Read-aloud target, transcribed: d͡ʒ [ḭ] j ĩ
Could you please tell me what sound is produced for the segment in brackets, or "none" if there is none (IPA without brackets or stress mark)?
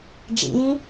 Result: ḭ